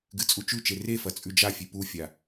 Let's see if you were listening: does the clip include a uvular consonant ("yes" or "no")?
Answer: no